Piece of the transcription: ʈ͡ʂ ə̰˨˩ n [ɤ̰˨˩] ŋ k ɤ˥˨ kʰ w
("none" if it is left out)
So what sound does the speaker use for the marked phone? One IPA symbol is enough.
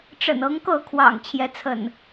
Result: ɤ˨˦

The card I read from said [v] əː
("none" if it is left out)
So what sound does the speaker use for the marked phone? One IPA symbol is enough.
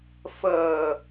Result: f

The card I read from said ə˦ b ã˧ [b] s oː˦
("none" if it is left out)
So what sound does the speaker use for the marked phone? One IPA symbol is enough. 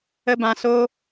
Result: none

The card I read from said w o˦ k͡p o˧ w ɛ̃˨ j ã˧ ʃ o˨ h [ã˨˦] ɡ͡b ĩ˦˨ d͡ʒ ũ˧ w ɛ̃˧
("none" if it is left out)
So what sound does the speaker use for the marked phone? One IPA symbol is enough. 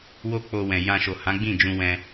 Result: ã˨˦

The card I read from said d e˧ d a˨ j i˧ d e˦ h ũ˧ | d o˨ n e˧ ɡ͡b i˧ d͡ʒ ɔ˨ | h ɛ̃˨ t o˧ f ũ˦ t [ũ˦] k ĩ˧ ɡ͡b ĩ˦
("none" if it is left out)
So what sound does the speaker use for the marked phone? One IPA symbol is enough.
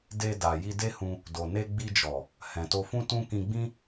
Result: ũ˦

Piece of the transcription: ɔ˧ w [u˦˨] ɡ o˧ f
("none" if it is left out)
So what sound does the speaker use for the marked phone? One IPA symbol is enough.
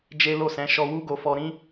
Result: u˦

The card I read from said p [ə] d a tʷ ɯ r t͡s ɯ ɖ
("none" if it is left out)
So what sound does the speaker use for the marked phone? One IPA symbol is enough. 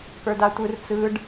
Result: ə˞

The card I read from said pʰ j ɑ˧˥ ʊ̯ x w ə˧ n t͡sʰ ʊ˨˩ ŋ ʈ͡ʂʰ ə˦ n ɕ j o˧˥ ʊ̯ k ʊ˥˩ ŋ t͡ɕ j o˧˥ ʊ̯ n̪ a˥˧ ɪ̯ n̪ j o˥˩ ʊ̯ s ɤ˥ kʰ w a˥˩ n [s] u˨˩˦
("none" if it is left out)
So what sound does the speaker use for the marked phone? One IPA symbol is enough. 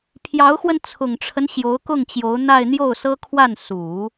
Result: s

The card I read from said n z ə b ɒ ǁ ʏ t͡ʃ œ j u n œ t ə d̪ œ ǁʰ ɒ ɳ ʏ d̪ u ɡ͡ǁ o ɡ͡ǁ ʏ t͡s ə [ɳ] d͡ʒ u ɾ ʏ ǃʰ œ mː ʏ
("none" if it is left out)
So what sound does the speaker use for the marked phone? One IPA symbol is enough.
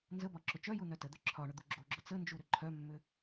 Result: n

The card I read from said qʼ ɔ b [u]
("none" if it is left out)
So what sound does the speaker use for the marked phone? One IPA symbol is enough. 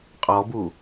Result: u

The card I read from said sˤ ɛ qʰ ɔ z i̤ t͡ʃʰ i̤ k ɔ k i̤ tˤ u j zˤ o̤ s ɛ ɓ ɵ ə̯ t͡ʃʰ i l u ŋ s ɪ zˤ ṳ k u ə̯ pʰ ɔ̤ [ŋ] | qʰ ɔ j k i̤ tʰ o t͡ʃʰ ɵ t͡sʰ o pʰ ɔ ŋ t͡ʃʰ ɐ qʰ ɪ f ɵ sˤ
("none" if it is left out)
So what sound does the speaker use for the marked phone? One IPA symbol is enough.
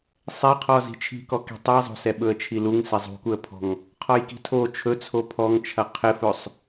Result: ŋ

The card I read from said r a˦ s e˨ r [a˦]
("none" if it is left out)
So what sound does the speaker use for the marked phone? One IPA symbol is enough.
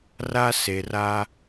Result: a˦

